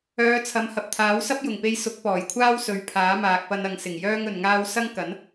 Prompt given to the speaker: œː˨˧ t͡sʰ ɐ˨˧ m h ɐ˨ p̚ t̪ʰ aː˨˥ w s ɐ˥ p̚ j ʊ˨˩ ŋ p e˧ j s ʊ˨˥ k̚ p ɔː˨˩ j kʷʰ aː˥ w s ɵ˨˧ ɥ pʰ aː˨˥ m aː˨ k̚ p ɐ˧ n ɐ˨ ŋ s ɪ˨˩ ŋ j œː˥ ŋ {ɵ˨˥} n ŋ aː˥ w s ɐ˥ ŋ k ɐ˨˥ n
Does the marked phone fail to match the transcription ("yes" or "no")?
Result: yes